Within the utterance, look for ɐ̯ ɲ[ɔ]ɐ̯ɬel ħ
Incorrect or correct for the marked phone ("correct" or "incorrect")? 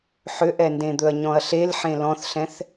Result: incorrect